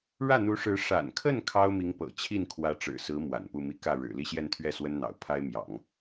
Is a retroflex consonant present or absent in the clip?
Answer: present